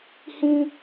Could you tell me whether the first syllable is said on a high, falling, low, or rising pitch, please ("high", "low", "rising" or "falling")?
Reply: high